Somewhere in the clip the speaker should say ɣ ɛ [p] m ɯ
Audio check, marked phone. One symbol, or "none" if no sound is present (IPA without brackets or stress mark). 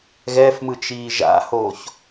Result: f